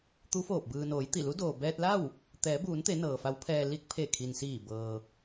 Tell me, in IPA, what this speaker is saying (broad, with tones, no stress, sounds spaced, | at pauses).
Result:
t̪ u˧˥ f oː˧˩ p̚ b ɯː˩ n oː˩˧ j t̪ i˧˩ l u˧˥ d oː˩ b ɛː˧ t̚ l a˥˨ w | t̪ ɛː˩˧ b uː˩˧ n t̪ e˩˧ n ɤː˩ f a˧˥ w pʰ ɛː˧ l i˧ k̚ pʰ e˧˩ kʰ i˩ n s iː˧˩ b ɤː˩